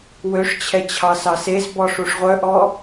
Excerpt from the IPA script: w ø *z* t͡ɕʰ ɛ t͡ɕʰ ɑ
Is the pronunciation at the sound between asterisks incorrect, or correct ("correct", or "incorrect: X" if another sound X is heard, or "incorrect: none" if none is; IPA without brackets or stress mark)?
incorrect: ʂ